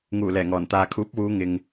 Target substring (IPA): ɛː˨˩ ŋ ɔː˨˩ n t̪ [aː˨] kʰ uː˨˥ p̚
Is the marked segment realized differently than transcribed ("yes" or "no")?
no